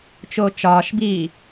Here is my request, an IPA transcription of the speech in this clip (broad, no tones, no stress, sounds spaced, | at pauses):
t͡ʃ oː t͡ʃ ɒː ʃ b iː